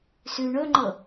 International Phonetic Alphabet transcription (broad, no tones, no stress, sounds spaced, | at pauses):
s ʉ ɳ ɵ ŋ͡ǃ ɤ